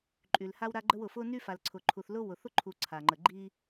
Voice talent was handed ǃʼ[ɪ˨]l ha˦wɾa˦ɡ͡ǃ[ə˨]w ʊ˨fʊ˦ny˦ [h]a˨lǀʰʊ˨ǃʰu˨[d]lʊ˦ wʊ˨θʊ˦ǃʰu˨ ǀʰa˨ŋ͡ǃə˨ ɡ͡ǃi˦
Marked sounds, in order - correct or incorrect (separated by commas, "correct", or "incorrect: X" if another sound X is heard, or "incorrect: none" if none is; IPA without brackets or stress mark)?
incorrect: y˨, incorrect: ə˦, incorrect: f, incorrect: θ